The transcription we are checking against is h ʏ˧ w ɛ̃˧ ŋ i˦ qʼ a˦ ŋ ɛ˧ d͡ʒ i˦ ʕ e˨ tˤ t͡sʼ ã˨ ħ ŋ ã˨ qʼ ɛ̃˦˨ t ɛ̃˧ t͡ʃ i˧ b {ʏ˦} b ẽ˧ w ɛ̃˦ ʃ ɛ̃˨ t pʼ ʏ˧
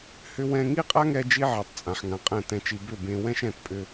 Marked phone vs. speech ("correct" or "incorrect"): incorrect